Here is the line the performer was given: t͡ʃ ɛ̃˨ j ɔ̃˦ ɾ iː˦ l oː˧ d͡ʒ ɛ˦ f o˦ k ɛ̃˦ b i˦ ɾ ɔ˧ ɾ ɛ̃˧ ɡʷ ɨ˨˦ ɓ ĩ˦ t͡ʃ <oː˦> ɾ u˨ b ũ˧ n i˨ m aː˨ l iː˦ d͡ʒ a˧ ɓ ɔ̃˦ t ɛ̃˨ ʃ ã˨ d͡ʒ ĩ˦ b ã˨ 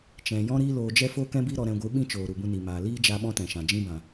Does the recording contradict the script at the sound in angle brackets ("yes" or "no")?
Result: yes